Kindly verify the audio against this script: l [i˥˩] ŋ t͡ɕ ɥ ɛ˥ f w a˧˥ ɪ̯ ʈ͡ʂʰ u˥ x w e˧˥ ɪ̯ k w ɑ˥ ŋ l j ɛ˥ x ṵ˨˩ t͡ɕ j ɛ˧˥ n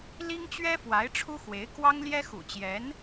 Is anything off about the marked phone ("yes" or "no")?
yes